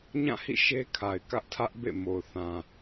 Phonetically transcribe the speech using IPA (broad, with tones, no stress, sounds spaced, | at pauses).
ɲ ã˦˨ h ḭ˦˨ ʃ e˦ kʰ a˨ ɪ̯ k ä˦ ʔ tʰ ä˦ ʔ b ḛ˦˨ m o˨ ʊ̯ θ ã˨